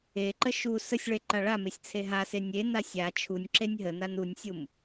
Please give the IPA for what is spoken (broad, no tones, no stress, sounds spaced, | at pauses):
e ǃ ə ʃ u s ə sʲ ɭ e ǃ a ɭ a m e sʲ t͡sʰ e ɦ a s e nʲ e n a sʲ a t͡ʃʰ u nʲ ǁ e nʲ ɦ ə n a n u nʲ sʲ u m